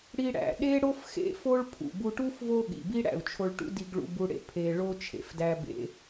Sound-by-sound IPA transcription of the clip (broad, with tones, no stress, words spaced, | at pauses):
ɽi˧ ɽæ̰˩ ɗe˥ɽo˥f xḛ˧fo˥ɭ pʰṵ˩bu˧ʈu˥f vo˥ɠḭ˩bi˥ ɽæ̰˩u̯t͡ʃʰo˧ɭʈṵ˥ di˧ɡɭṵ˧bu˧ɽḛ˧ pʰe˧ɭo˥ t͡ʃʰḛ˩fdæ˥bḛ˧